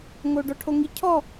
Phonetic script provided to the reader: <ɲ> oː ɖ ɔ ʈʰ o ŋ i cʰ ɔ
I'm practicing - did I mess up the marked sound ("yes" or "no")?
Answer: yes